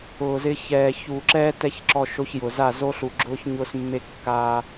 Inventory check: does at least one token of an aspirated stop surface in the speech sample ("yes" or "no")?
no